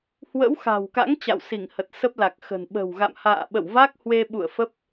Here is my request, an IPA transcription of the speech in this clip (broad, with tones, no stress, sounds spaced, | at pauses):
h w ə̰˧˥ w x a̤˨˩ w k a̰˧˥ ŋ t͡ɕ a̰˧˨ w s i˧˩ ŋ h ə˨˩ t̚ s ə˦˥ p̚ l a˨˩ k̚ x ə̤˨˩ n ɓ ə̤˨˩ w ɣ a̰˧˨ m h a̰ː˧˨ ɓ ə̰˧˨ w v a˦˥ k̚ h w e˧ ɓ ṵ˧˨ ə̯ f ə˦˥ p̚